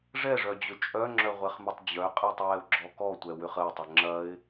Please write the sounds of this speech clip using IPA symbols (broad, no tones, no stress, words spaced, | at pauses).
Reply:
ʐɛʐœd͡ʑʏ t͡ʃʼœŋ͡ǁœʁʷɛχmʏtˤ d͡ʑœqʼitˤwɛʊ̯ɡ͡ǁɔ kɔtʷɛwʏχ əɪ̯tˤʏ ŋ͡ǁɐɪ̯